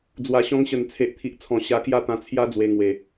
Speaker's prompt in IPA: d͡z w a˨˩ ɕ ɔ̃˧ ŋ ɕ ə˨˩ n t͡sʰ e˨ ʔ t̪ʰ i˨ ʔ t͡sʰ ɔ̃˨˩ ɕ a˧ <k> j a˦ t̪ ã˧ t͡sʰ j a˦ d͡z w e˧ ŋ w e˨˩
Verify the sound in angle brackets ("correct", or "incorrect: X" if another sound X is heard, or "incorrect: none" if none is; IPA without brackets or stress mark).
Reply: correct